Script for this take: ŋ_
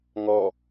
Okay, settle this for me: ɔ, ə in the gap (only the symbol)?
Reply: ɔ